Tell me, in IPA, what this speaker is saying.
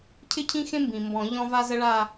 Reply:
cʰɪ˥cʰĩ˥xẽ˥mbĩ˩ mbɔ̃˨˩˦ʎɔ̃˥ va˥zə˥ɭa˥˧

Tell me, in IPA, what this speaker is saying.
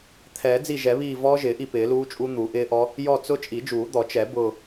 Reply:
t̪ʰɛː˨˩˦d͡zi˦˨ʒɛ˨˩˦βiː˦˨ vɔː˦˥ʒɪː˨˩˦ʔi˦˨ pɪː˨˩˦luː˦˥t͡ʃʼu˦˥ n̪u˨˩˦ʔɪː˦˥ʔɔ˦˥ | jɔ˦˨t͡sʊ˦˥ t͡ʃʼi˨˩˦d͡ʒuː˨˩˦d̪ɔ˨˩˦ t͡ʃɛ˨˩˦ bʊː˦˨

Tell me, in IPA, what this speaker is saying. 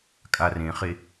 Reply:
kʼarẽχe

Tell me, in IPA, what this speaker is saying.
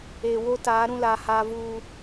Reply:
e˨wo˦ta˨˦ ɾũ˦la˨ha˦ vuː˦

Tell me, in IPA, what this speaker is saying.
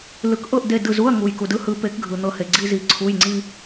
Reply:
lɯ˨˩˦kʔɤ˦˨ʔ de˦˨dɯ˦˨zu˧˥˧ɐ̯ ŋu˨jku˨dɯ˥hɯ˨˦ pe˨˦kɡʱɯ˨ n̪ɤ˦˨he˨ɡ͡ǀi˧˥˧zi˨˦ ǀʰu˧˥˧jŋ͡ǀi˥

